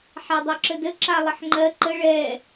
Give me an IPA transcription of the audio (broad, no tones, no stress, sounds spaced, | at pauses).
ħ a dˤ œ ǁ ə d ə ǁ a lˠ ɘ ħ ŋ͡ǃ ɜ ǃ ə ɭ ɛ